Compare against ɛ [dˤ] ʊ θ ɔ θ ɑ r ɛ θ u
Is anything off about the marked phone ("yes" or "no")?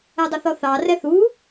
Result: no